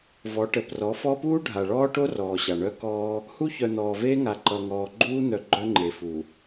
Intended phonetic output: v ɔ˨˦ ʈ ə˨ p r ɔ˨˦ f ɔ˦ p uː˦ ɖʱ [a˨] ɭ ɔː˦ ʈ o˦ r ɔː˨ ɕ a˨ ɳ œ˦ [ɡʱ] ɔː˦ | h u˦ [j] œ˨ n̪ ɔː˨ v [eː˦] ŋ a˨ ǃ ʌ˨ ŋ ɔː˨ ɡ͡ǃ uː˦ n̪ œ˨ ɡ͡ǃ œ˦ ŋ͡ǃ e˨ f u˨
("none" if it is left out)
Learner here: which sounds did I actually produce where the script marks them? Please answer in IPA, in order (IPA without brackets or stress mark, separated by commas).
a˨, k, ç, eː˦